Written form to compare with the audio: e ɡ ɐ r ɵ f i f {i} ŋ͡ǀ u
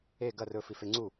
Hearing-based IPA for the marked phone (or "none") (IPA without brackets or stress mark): e